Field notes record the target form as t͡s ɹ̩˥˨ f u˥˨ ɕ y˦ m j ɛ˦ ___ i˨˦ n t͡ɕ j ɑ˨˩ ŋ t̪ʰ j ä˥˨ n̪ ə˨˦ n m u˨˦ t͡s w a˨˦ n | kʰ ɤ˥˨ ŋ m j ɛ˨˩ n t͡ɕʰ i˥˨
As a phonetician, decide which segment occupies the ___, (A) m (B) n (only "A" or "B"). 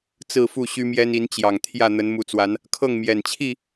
B